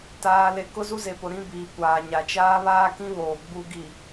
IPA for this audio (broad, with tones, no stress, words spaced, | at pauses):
taː˨le˨ kʊ˦zu˦ze˨pʊ˨ ɾĩ˦biː˨kʷaː˨ɲa˨ t͡ʃaː˦βaː˦kĩ˦βoː˨ ɡ͡bu˨ɡi˨